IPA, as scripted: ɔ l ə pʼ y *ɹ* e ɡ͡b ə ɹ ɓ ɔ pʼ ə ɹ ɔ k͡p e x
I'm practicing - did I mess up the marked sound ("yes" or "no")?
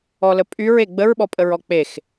no